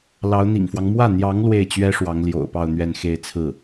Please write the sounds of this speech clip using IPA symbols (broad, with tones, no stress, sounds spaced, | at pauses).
l ɑ˧˥ ʊ̯ n̪ ḭ˨˩ ŋ f w ɑ˦ ŋ m w ä˥˩ n̪ j ɑ˧˥ ŋ l w e˥˩ ɪ̯ t͡ɕ ɥ ɛ˥ ʂ w ɑ˧˥ ŋ l j o̰˨˩ ʊ̯ p ɑ˥˧ ʊ̯ n̪ ɥ ɛ˥˧ n x e˥˧ ɪ̯ t͡sʰ ɹ̩˥˩